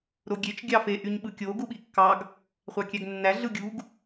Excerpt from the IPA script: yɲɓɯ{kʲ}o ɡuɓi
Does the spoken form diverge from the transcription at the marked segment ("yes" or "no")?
no